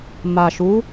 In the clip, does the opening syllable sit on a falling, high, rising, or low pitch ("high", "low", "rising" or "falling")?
low